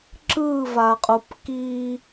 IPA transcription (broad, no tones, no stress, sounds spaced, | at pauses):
ǁ ɯ v a qʼ u p k i